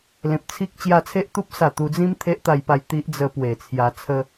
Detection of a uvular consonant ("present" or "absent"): absent